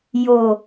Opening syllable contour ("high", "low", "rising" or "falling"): low